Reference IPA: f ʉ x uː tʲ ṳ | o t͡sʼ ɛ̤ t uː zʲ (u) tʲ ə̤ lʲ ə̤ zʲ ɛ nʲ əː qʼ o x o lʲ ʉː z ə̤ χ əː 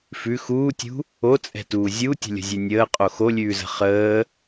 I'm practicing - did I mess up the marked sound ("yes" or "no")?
no